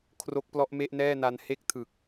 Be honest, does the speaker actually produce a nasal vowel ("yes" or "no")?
no